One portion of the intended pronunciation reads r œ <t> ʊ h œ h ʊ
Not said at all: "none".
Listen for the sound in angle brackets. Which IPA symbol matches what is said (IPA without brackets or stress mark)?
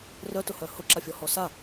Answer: t